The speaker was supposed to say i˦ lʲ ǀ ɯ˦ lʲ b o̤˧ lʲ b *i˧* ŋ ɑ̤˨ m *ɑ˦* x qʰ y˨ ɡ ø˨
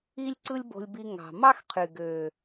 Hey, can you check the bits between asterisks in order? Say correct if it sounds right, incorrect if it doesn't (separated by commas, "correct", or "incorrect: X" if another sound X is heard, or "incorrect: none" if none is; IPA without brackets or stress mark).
correct, correct